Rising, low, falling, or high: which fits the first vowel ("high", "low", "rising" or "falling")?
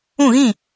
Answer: falling